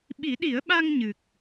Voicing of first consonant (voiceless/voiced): voiced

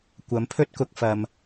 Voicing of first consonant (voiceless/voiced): voiceless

